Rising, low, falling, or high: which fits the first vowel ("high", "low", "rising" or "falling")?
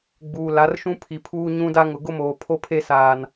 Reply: low